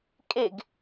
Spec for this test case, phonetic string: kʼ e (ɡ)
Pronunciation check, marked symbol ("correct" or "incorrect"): correct